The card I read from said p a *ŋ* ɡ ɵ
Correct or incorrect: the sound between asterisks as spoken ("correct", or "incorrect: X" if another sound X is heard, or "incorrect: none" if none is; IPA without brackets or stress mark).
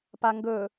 correct